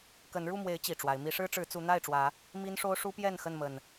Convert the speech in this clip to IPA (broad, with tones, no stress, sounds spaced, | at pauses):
k ə˨˦ n ɻ u˥˨ m w e˨˦ ɪ̯ t͡ɕ i˨˩ ʈ͡ʂ w a˨˦ ɪ̯ m i˨˦ ʂ ɻ̩˦ ʈ͡ʂ ɻ̩˨˦ t͡s u˨˦ n̪ a˥˨ ɪ̯ ʈ͡ʂ w ä˨˦ | m i˦ n ʂ o˦ ʊ̯ ʂ u˦ p j ɛ˥˨ n x ə˥˨ n m ə˨˩ n